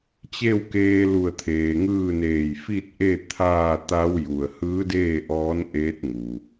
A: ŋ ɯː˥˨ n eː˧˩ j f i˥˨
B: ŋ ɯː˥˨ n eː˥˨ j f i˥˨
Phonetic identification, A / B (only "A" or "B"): A